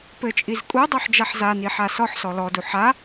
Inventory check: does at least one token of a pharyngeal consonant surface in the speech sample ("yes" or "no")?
yes